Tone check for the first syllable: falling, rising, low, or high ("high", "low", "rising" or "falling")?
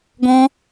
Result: high